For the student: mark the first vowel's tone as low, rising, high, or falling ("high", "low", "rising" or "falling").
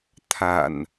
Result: low